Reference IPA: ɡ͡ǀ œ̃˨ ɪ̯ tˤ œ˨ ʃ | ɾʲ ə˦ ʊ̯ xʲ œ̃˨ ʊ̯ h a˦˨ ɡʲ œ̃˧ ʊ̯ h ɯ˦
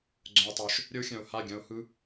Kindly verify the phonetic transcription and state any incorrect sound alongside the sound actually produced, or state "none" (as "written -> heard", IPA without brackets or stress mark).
none